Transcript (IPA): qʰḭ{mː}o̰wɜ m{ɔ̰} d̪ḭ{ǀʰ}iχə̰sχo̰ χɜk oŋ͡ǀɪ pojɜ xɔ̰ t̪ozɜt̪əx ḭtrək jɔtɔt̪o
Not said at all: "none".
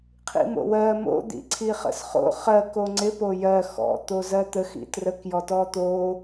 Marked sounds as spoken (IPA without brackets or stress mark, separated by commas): m, o̰, ǀʰ